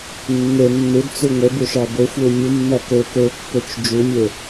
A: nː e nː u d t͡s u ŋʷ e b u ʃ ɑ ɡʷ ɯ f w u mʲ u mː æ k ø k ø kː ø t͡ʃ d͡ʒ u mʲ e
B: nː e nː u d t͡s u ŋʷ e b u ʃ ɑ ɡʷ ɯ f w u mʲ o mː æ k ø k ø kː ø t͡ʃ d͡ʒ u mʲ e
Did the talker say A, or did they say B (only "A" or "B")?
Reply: A